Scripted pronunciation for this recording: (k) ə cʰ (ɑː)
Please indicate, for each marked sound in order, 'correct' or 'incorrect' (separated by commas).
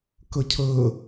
correct, incorrect